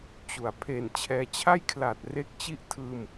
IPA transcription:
t͡ɕ u˩˦ a̯ pʰ e˨˩ n t͡ɕʰ ɛː˧ t͡ɕʰ a˥˩ j kʰ l a˨˩ t̚ r e˦˥ k̚ t͡ɕ i˥˩ ʔ tʰ ɯː˧ m

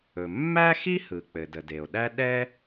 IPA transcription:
ɵ˩ mː æ˥ x i˥ h ɯ˩ k͡p ɘ˩ d ə˩ d e˩ o̯ ɗ æ˥ ɗ ɛ˥

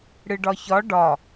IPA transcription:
ɽ ɨ ɖ ɒ ç ɒ ɖ ɒ

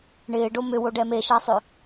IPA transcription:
ɳ ɪː ɖ o m ʏ w o ɖ ɛ m e ʃ ɐː sˤ ʏ

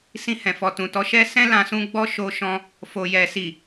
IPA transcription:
s ĩ˧ h ɛ̃˨ f ɔ˨ t ũ˨ t ɔ˨˦ ʃ ɛ˦ s ɛ̃˦ l ã˧ s ũ˧ ɡ͡b ɔ˦ ʃ o˧ ʃ ɔ̃˧ | f o˨ j ɛ˨ s i˨

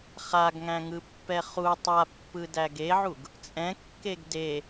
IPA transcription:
χ a ɡ ŋ æ̃ ŋ ɯ pː ɛ χ u tˤ a pː ɯ d æ ɡ e ʕ u ɡ | t͡sʼ ɛ̃ kː e ɡ d e

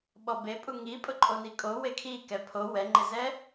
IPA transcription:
ɓ ɔ b e pʼ u ŋ i pʼ ʊ ǃʼ o n i kʼ o w e kʰ i k ɛ pʰ o w ɛ ŋ͡ǃ ɪ z ɛ

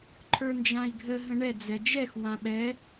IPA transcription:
ǃʰ ə˞ n d͡ʒ ã i̯ ɡʱ ə ɦ ə̃ ɳ ɛ d͡z ɛ d͡ʒ ɛ x w ã ɓ ɛ

